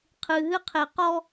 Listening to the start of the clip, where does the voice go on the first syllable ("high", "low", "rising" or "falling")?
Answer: low